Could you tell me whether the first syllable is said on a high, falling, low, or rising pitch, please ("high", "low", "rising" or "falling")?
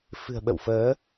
low